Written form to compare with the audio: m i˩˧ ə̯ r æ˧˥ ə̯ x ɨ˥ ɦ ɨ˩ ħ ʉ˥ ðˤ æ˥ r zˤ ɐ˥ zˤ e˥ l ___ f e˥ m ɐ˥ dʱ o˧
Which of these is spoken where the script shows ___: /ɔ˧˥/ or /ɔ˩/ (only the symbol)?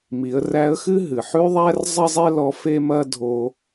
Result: ɔ˧˥